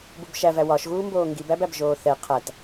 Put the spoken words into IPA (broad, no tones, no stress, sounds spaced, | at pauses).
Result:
b u b ʃ æ v æ w ɒ ʃ ɣ uː m b oː ŋ ɡ i b æ b æ b ʒ oː θ ɛ qʰ æ t